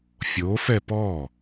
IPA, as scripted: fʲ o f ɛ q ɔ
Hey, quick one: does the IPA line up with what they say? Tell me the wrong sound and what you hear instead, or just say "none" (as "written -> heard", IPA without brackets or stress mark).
q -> p